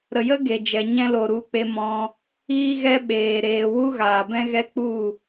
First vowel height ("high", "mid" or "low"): mid